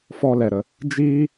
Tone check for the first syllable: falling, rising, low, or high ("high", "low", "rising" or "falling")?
high